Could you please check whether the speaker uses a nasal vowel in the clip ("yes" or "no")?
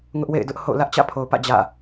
no